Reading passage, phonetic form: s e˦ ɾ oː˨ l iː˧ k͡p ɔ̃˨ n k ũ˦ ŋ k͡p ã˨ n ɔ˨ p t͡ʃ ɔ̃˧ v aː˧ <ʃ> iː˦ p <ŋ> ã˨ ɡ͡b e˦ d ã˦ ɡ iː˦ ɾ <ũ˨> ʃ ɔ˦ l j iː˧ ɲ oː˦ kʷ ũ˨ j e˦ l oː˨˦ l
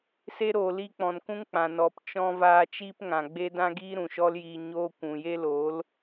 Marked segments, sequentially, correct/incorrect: incorrect, correct, correct

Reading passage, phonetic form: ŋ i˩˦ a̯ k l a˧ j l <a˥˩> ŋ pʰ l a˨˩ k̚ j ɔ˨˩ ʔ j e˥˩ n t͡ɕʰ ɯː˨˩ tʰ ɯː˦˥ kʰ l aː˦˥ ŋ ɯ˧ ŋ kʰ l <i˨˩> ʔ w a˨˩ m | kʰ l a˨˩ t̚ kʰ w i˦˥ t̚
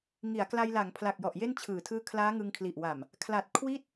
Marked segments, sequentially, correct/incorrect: incorrect, correct

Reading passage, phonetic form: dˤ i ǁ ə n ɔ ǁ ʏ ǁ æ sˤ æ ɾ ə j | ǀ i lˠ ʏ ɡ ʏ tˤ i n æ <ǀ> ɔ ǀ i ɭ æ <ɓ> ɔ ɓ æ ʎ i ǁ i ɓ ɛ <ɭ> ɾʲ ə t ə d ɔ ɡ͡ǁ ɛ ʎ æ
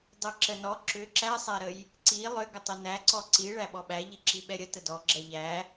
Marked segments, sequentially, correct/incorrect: correct, correct, incorrect

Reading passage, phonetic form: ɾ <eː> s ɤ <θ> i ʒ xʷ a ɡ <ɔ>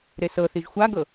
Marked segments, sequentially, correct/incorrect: incorrect, correct, incorrect

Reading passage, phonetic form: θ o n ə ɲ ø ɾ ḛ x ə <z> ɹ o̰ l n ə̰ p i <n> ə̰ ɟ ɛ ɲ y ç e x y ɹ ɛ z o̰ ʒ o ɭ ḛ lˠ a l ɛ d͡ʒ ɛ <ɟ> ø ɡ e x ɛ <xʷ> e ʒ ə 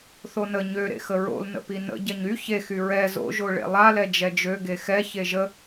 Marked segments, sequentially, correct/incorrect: incorrect, correct, incorrect, incorrect

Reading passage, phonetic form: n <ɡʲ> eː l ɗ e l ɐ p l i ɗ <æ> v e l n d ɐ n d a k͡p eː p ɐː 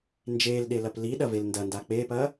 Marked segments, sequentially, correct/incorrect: incorrect, incorrect

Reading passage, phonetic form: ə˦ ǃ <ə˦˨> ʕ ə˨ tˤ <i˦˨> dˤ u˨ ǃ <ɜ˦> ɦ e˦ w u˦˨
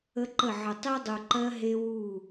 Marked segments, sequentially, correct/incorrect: correct, incorrect, correct

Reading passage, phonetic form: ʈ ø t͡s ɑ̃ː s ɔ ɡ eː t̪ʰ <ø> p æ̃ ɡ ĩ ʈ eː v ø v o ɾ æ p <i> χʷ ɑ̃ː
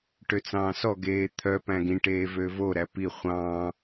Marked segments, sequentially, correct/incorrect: incorrect, correct

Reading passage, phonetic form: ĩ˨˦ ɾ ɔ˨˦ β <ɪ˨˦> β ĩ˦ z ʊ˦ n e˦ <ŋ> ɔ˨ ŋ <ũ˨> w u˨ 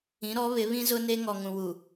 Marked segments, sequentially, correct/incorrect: correct, correct, correct

